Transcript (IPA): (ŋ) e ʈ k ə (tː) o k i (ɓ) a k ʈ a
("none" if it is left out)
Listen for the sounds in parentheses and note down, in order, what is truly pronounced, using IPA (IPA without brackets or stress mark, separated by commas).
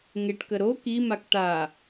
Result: ŋ, ɾ, m